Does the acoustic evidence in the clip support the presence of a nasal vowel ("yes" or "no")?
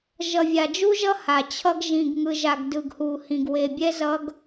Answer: yes